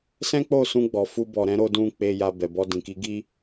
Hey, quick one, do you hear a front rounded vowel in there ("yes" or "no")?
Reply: no